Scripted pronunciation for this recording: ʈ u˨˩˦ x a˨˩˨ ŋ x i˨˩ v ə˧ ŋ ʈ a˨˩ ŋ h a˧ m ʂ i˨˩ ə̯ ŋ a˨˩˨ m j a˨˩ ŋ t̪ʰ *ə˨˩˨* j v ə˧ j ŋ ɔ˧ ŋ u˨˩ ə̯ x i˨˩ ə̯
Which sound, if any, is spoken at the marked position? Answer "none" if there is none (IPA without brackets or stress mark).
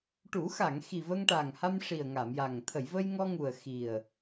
ə˨˩˨